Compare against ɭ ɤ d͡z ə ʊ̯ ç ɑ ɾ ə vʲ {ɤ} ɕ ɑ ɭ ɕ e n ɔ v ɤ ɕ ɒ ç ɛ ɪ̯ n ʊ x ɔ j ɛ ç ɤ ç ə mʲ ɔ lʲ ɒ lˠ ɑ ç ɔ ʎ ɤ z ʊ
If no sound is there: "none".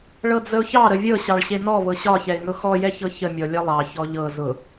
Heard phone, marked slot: ɤ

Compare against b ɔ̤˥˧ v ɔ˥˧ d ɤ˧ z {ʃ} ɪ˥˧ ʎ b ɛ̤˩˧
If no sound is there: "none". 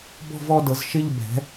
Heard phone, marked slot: ʃ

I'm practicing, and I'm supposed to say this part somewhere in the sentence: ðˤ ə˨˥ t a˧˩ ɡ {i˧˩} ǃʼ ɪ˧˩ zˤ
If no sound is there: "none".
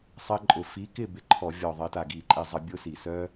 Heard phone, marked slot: i˧˩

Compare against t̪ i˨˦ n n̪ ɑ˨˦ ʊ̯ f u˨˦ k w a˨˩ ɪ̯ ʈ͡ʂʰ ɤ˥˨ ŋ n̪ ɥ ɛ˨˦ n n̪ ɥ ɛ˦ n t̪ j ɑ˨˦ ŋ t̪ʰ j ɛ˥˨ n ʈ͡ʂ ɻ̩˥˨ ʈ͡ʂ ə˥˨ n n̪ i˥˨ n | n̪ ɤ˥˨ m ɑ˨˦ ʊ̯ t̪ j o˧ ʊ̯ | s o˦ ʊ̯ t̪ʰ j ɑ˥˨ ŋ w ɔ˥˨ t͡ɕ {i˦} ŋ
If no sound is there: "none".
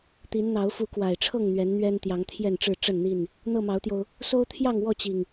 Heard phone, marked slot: i˨˩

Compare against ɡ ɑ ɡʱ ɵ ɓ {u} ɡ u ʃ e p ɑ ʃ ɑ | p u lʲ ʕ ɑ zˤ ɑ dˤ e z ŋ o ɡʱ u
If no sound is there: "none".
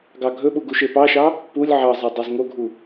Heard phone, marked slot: u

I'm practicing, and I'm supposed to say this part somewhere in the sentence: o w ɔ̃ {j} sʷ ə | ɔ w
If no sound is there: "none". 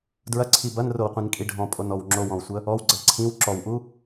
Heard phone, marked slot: w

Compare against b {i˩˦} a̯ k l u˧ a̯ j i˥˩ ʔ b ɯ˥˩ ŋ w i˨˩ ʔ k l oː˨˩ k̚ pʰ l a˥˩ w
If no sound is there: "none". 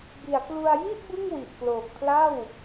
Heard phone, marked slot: i˩˦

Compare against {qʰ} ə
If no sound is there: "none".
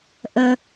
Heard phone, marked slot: ʔ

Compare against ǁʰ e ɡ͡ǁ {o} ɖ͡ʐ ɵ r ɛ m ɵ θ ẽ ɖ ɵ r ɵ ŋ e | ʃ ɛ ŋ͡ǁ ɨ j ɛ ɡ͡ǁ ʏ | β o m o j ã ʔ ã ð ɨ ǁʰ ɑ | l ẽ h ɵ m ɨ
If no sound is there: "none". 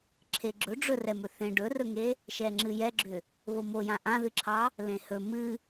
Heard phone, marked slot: ɵ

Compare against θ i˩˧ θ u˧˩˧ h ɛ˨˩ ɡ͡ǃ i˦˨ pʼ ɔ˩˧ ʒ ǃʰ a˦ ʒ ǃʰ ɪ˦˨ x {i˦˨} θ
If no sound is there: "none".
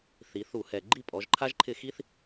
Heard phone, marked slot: i˦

